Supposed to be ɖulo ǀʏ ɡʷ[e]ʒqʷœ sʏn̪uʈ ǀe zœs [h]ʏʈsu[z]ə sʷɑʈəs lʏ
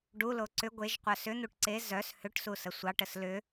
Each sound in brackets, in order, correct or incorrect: correct, correct, incorrect

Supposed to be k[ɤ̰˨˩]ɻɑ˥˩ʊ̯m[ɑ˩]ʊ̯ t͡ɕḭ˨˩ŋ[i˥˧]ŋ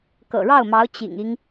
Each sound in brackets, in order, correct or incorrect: correct, incorrect, incorrect

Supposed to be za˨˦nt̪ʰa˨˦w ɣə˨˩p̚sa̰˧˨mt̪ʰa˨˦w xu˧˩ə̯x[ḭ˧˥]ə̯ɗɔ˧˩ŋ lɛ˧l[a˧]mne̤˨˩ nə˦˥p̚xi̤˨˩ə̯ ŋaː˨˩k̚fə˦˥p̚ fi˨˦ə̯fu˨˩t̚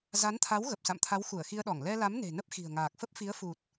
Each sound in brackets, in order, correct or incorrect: incorrect, incorrect

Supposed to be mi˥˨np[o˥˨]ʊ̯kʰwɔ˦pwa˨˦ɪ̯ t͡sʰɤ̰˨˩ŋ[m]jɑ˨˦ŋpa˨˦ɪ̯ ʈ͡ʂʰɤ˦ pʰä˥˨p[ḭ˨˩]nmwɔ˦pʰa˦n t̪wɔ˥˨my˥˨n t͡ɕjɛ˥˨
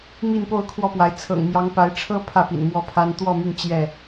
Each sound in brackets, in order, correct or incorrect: correct, correct, correct

